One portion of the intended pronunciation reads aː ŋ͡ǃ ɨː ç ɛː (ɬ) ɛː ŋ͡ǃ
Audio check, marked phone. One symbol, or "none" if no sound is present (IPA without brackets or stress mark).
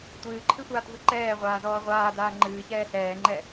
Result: ɬ